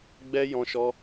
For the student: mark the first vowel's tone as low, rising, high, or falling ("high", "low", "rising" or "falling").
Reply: high